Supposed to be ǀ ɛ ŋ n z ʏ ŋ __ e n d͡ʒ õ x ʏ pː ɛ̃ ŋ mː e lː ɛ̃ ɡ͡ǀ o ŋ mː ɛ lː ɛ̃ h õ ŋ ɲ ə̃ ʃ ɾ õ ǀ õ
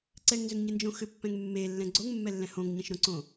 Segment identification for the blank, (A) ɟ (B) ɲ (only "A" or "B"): B